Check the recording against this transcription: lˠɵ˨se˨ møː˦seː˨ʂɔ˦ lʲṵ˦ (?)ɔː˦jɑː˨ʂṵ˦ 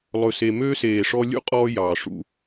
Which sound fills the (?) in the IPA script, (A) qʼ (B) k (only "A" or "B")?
A